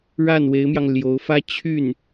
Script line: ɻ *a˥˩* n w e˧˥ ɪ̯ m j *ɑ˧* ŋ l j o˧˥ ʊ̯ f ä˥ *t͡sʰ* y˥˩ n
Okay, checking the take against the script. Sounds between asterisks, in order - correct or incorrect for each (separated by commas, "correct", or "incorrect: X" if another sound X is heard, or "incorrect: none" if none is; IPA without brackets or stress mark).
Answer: correct, correct, incorrect: t͡ɕʰ